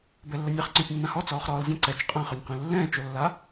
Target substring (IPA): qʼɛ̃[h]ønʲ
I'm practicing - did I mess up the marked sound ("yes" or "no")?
yes